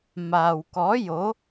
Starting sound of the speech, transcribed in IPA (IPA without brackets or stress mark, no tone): m